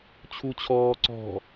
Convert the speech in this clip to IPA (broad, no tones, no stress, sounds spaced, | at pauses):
t͡ɕʰ u t͡ɕʰ ɔː ǀ ɔ̤